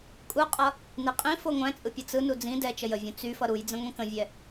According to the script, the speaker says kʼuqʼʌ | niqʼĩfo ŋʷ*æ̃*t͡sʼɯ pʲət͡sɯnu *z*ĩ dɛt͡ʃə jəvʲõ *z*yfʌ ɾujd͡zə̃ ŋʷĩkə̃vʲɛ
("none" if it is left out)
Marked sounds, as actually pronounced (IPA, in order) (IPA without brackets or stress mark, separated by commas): æ̃, d͡z, t͡s